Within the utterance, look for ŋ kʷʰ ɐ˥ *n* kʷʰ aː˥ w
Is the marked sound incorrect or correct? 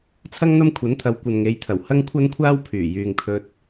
correct